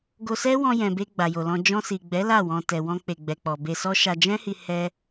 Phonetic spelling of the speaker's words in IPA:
ɡ o˧ s ɛ˦ w ɔ̃˧ j ɛ̃˨ b e˧ ɡ͡b a˨ j o˨ l ɔ̃˧ d͡ʒ ɔ̃˧ s i˨ ɡ͡b ɛ˨˦ l a˦˨ w ɔ̃˧ t ɛ˨ w ɔ̃˧ k͡p e˨ ɡ͡b ɛ˨ k͡p ɔ˨ b e˧ s ɔ˦ ʃ a˧ d͡ʒ ɛ̃˦ h i˧ h ɛ˦

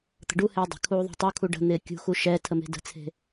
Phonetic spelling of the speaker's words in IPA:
t̪ ə̤ ɖ u h eː dˤ ə̤ kʰ uː ðˤ e̤ tˤ u kʰ u ɖ ə̤ n̪ ɪː kʲ ṳ x u ʃ ɛ tʰ ə m e̤ d ə̤ t͡sʰ e̤

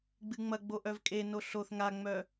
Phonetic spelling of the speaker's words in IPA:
ɡ͡b ɨ ŋ͡m ɐ ɡ͡b o ʔ œ v kʼ e n o ɬ o θ ŋ a ŋ͡m œ

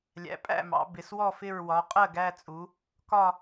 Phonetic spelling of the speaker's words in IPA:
lʲ æ̰˩˧ pʼ æ̰˥˨ m ɑ̰˩˧ b ɪ˩˧ s w ɔ˥˨ f ɪ˥˨ ɹ w ɒ˩˧ qʼ ɜ˥˨ ɡ æ˥˨ t͡sʼ u˩˧ | k ɒ˥˨

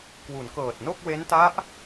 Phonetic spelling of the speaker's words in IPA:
k w u˩˦ n k ɤː˨˩ t̚ n o˥˩ k̚ w e˦˥ n t a˦˥ ʔ

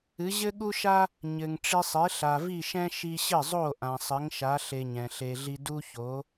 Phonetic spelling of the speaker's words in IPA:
ɨ˩˥ ʑ ɘ˥ ɠ u˥ ʃ a˥ | ɲ ɘ˩ ŋ ʈ͡ʂ i˧ sˤ e˩˥ ɬ a˩ v i˥˩ ʃ ɛ̃˥ ʃ i˧ ɕ ɘ˥˩ zˤ o˥˩ ʔ ã˩ sˤ ɘ˩˥ ŋ ʃ a˩˥ ɬ e˧ ɲ ɛ̃˩ ɬ e˧ ɮ i˥ d u˥ ç o˩˥

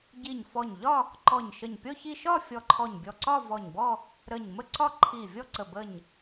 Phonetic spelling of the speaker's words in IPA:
ɟ i˧˩ ɲ f ɔ˧˩ ɲ ʎ ɒ˥˧ | ǃ ɔ˧˩ ɲ ʃ ə˧˩ ɲ pʲ ɔ˥˧ ç i˥˧ ʃ ɒ˥˧ fʲ ɔ˧˩ ǃʰ ɔ˧˩ ɲ bʲ ɔ˧˩ ǀ ɒ˥˧ v ɔ˧˩ ɲ b ɔ˥˧ | ɾ ə˧˩ ɲ m ə˥˧ ǀ ɒ˥˧ ǃʰ i˧˩ vʲ ɔ˥˧ ǀ ə˧˩ b ə˧˩ ɲ

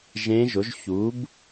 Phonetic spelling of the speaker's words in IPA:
ʒ ẽ˦˥ ʒ ʊ˨˥ ʒ ç u˨˥ b

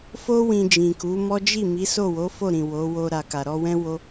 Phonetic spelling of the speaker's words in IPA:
f o˦ w ĩ˧ d͡ʒ ĩ˨ k u˨˦ m ɔ˦ d͡ʒ i˦˨ m i˨˦ s o˦˨ w o˨˦ f o˦˨ ɾ ĩ˨ w o˨˦ w o˧ ɾ a˨ k a˨ ɾ ɔ˧ w ɛ̃˦ w o˦

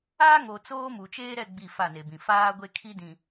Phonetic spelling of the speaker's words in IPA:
aː˦ ŋ o˨ t͡s oː˦ m u˨ t͡ʃ eː˦ ɾ ɛ˦˨ ɡ͡b i˦˨ f a˦˨ n e˨ b ĩ˨ f aː˦ ɡʷ e˦ kʰ i˦ d ĩ˨

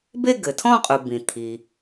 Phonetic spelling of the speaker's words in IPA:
b e˥˧ ɡ ɘ˩ tʰ ɔ̃˥˧ qʼ u˩ b ĩ˩ t̪ʰ i˩

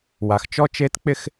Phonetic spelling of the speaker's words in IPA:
w a˩ x t͡ʃ ɔ˧ t͡ʃ e˧˥ t k͡p ɪ˧ x

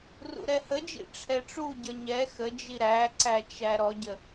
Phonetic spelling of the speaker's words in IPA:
r ṵ ɾ ɛ h ə d͡ʒ ḭ ʈ͡ʂʰ ɛ ʈ͡ʂ u ɟ ʌ ɲ ɛ x ə d͡ʒ i ɾ æ ǀ æ t͡ʃ æ ɾ ɔ ɟ ə

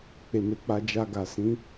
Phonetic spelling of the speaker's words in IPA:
k͡p e˨ m e˨ k͡p a˧ d͡ʒ a˧ ɡ a˨ s ĩ˨˦

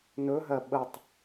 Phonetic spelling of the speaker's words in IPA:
n ɵ ɦ ɜ ɓ ə tˤ

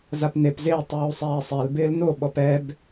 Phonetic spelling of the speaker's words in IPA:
z a p n e p z ɪː tˤ uː sˤ ɛː sˤ ɛ l b ɪː l n o ɓ ɔ p ɛ b

